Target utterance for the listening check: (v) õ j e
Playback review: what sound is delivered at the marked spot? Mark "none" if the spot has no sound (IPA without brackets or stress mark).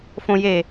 f